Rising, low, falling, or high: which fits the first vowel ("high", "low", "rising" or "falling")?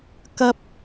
high